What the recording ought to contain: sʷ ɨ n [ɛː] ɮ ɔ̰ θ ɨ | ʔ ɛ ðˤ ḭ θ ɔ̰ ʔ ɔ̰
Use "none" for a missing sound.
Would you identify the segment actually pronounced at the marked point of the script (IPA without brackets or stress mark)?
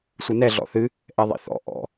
ɛ